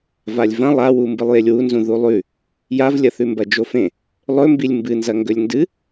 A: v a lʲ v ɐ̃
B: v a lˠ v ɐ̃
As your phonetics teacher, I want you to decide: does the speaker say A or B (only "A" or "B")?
A